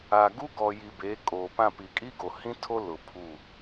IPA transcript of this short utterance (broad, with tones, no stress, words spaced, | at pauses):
aː˨ɡu˦ɡɔ˨ji˨ beː˨˦kʼoː˨pã˦˨ pi˨kʼi˦ɡo˨hĩ˦ tʰo˦lʊ˨ pʰu˦˨